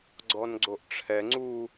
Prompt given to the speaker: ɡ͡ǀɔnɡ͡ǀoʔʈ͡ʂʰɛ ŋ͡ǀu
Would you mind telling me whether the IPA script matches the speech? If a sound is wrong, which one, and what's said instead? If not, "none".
none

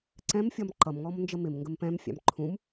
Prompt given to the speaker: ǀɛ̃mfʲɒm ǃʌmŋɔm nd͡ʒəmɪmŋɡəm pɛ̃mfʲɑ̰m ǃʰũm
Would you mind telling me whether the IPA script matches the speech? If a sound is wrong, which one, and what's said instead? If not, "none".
none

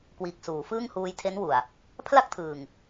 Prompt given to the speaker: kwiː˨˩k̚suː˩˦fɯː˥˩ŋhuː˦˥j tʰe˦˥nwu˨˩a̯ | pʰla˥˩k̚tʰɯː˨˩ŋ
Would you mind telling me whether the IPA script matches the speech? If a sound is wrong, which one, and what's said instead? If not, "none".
none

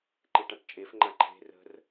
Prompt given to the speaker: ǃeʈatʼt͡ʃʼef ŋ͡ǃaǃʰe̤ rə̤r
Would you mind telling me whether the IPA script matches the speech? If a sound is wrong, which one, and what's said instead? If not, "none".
tʼ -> ʈ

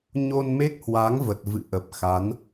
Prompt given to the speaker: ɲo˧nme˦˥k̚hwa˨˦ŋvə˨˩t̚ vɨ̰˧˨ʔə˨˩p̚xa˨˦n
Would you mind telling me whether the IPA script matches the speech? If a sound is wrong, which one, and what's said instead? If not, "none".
none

